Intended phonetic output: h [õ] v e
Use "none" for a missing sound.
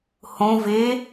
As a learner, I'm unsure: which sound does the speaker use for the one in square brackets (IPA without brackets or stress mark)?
õ